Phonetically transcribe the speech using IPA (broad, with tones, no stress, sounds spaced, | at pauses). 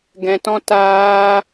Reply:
ɡ ɛ̃˧ t ɔ̃˦ t aː˦